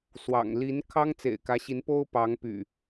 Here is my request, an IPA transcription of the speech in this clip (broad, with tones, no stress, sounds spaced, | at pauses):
s w ɑ̰˨˩ ŋ l i˨˦ n kʰ ɑ˦ ŋ t͡s ḛ˨˩ ɪ̯ k ä˨˦ ɕ i˨˦ n p o˦ ʊ̯ p ɑ˨˦ ŋ p y̰˨˩